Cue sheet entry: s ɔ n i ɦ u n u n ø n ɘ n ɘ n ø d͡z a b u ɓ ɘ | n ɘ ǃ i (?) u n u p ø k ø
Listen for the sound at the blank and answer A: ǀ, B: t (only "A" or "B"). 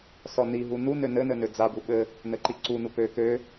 A